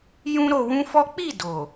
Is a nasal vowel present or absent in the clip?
present